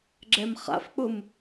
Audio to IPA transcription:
ɡ͡ǁ ɛ m χ a̰ f k͡p ʊ m

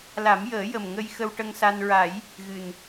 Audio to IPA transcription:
l a˨˩˦ m j əː˨˩˦ j ə˨˩ m ŋ ə˧ j x ə˧ w ʈ ə˧ ŋ s a˧ n ɹ a˨˩˦ j | ɣ ɨ˨˩ n

